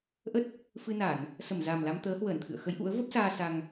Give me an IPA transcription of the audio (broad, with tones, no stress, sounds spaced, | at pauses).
ʔ ə˦˥ t̚ | f ɨ˧ n a˧˩˨ n | s ə˧˩ m z a˨˩ m l a˧ m t̪ əː˨˦ h w əː˧˩ n t̪ʰ ɨ̰˧˨ ə̯ x ə˨˦ j ʔ ṵ˧˥ ə̯ v ə˦˥ p̚ s aː˧ s a˧ ŋ